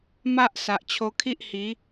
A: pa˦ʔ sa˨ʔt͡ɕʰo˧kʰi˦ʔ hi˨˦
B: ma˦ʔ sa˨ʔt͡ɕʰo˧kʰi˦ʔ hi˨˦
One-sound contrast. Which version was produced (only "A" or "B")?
B